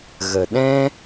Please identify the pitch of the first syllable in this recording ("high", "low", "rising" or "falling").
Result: low